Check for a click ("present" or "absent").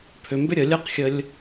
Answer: absent